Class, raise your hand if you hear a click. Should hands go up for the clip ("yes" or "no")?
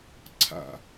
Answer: yes